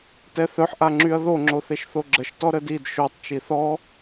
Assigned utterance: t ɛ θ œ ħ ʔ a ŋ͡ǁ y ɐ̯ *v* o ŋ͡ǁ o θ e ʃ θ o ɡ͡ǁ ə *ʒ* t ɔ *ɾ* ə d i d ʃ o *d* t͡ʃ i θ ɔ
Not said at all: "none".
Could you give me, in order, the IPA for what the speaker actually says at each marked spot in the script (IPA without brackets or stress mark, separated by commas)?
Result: ð, ʃ, ɾ, tˤ